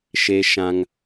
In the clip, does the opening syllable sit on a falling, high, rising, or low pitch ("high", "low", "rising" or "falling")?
high